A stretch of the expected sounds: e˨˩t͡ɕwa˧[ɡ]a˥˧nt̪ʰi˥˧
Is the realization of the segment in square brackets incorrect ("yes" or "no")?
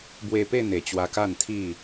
yes